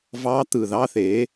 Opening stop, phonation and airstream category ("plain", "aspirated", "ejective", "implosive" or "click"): plain